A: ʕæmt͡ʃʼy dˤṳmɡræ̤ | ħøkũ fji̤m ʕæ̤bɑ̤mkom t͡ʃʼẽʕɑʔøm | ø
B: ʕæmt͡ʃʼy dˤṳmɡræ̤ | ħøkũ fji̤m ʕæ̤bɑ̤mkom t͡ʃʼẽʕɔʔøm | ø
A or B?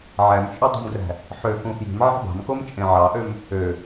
A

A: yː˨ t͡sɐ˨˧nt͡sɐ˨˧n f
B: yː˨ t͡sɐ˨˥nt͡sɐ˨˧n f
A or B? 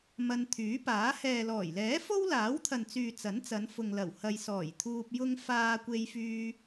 B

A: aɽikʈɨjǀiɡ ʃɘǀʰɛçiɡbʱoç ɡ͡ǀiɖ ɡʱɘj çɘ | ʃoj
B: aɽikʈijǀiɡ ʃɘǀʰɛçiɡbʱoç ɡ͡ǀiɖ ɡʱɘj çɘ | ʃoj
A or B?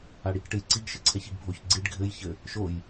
A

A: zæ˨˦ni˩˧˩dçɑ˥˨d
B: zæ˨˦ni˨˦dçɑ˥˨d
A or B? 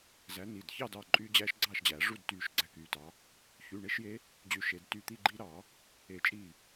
A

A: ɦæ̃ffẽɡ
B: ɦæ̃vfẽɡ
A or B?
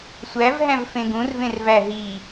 B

